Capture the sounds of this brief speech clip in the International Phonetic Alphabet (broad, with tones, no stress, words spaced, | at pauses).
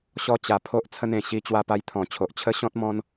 ɕɔ˦t͡ɕa˧pʰo˦ʔ t͡sʰə˦nẽ˨˩ ɕi˧ t͡ɕwa˧pa˧jt̪ʰɔ̃˨˩t͡ɕʰo˨ʔ t͡ɕʰə˦ɕɔ̃˦t̚ mɔ̃˦n